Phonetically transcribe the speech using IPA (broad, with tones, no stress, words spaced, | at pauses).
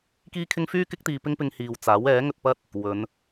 kiː˥kʰɪ˥ŋ fyː˥ kɪ˥k̚t̪iː˧pɪ˥ŋpɪ˧ŋ hiː˨wt͡saː˨˥w ɛː˨˥ŋɵ˧t̚pɐ˥t̚ | wɵ˨˧n